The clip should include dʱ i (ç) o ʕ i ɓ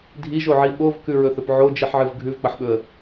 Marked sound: incorrect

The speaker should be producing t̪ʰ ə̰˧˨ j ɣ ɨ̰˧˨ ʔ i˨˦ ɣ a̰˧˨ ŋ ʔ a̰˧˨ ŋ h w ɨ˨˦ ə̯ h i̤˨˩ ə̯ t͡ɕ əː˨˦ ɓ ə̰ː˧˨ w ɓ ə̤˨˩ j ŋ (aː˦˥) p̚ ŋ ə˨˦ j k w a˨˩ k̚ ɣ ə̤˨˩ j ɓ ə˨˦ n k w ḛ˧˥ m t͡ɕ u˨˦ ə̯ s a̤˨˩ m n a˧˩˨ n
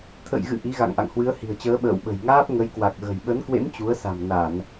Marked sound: correct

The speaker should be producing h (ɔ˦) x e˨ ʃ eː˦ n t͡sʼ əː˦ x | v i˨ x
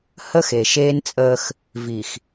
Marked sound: incorrect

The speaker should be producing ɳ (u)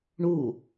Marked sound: correct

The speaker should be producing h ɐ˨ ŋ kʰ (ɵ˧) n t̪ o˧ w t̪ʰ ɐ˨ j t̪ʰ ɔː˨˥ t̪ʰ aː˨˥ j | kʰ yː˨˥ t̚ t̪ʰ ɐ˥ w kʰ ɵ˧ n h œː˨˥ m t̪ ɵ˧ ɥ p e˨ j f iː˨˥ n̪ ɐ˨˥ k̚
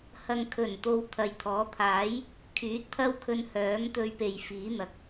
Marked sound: incorrect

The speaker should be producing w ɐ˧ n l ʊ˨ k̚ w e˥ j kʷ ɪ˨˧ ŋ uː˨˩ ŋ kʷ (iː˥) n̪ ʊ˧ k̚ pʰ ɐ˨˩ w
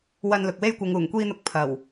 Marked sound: correct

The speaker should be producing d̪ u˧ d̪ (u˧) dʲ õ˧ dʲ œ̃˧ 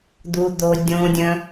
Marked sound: incorrect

